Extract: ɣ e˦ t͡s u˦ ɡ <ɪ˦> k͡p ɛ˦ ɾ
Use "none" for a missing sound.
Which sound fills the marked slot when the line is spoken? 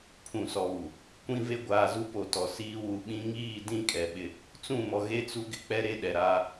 ɪ˦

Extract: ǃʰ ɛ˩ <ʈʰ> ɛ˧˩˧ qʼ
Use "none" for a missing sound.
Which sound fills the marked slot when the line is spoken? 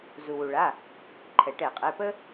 ʈ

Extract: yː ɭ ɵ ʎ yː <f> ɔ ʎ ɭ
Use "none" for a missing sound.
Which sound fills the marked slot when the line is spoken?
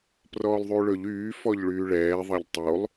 f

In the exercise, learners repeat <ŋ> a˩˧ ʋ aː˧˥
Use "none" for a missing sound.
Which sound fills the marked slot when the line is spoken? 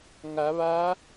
ŋ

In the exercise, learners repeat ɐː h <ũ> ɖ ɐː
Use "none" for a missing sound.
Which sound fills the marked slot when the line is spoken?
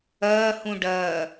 ũ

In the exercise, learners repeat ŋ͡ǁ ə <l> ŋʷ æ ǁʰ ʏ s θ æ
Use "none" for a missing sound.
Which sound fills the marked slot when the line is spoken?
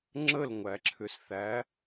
l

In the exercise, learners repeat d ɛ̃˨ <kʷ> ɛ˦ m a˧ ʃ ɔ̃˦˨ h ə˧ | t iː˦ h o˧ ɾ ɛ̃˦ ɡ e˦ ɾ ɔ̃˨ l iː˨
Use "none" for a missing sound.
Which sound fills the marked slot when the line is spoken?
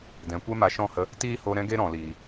kʷ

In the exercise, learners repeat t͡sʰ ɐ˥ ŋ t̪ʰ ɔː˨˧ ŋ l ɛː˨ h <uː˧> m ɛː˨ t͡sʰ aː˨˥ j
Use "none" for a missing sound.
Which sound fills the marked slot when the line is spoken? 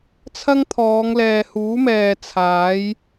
uː˨˥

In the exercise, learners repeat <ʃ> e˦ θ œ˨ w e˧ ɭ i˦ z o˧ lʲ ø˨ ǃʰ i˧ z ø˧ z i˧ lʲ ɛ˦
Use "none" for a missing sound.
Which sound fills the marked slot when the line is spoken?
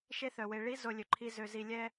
ʃ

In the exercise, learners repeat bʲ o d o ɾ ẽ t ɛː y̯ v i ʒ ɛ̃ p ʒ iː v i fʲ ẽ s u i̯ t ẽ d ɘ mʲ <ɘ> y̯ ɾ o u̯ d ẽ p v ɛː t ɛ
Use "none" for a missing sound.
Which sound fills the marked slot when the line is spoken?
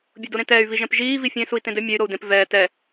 ɛ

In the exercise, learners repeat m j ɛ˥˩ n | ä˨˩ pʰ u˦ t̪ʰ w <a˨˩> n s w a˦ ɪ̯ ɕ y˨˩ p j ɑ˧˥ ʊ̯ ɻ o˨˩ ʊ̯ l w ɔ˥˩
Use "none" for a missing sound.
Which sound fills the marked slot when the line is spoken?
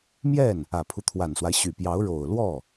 a˨˩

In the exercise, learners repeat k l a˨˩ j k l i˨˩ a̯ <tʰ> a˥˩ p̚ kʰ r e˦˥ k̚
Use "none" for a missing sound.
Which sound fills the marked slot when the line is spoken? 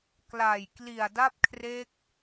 d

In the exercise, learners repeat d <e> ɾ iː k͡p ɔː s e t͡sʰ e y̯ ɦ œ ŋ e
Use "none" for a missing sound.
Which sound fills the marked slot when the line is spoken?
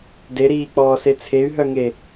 e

